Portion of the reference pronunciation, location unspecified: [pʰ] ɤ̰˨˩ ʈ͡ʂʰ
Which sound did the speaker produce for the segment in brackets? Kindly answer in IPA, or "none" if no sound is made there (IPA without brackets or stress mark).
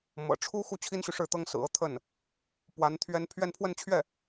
m